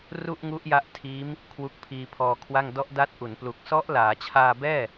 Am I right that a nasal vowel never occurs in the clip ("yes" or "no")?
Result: yes